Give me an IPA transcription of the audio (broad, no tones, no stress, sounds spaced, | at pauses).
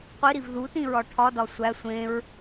qʷ i ɾ i v ð u t ĩ ɹ ɒ ʈʰ ɒ d ɒ sʷ æ sʷ ẽ ɹ